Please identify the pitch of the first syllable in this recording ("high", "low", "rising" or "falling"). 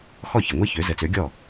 falling